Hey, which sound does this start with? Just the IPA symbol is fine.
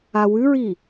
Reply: a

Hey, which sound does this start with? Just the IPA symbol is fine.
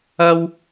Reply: ɐ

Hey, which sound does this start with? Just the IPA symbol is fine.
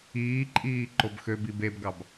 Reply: iː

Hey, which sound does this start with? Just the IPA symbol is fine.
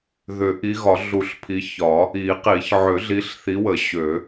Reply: ð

